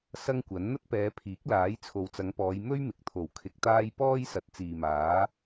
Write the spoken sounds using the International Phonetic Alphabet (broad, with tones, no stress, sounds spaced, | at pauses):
s ɐ˥ ŋ kʷ ɐ˨˥ n n̪ ɐ˥ t̚ p ɛː˨˧ pʰ iː˨˥ k̚ l aː˨˥ j t͡sʰ o˨ w t͡s ɐ˨˧ ŋ p ɔː˨˧ j m ɵ˥ ɥ m ɪ˨ k̚ t̪ʰ o˨˩ w kʰ ɪ˧ k̚ t̪ aː˥ j p ɔː˥ j s ɐ˨˥ t̚ t͡s iː˨ m aː˨˥